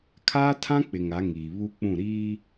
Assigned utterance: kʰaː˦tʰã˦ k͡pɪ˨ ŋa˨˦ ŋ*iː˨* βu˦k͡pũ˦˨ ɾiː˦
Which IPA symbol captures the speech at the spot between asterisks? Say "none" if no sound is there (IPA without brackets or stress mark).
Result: iː˨